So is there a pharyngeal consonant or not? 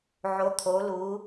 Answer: yes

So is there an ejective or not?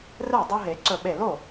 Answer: no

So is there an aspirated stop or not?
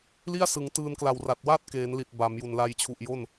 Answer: yes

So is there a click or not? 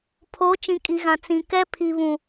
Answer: no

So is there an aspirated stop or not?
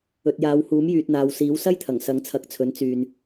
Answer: yes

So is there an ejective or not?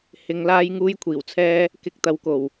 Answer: no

